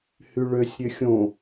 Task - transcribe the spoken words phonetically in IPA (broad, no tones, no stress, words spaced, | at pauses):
hyɭøsʲ ɾʲøxʲõ